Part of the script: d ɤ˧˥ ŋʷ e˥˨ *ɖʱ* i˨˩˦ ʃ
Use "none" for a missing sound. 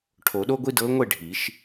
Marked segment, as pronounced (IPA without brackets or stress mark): ɖʱ